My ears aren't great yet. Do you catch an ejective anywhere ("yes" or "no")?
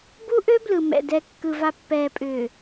yes